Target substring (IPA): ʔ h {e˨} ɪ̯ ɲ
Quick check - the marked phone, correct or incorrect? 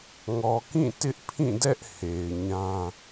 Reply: correct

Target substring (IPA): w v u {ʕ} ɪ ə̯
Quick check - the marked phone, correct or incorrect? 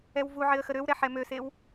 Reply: correct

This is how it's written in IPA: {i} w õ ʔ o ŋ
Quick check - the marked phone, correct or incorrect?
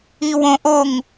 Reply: correct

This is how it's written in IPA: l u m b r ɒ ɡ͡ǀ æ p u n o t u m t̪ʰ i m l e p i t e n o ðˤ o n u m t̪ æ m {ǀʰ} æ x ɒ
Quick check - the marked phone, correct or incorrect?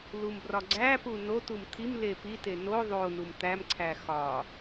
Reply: correct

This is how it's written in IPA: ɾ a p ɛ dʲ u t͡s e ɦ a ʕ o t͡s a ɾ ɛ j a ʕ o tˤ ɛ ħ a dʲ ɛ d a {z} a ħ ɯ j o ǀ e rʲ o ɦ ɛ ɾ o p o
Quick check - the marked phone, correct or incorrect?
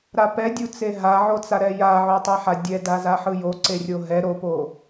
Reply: correct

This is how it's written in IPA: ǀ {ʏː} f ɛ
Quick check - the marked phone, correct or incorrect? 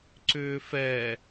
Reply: correct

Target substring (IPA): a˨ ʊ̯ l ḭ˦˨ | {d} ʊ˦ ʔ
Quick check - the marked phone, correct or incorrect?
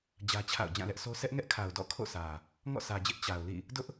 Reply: correct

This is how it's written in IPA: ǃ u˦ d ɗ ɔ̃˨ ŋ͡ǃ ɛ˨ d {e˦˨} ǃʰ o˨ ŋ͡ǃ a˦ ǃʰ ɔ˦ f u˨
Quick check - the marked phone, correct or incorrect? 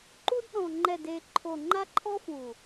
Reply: incorrect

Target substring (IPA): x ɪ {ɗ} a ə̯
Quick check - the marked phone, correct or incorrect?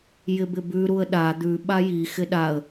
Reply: correct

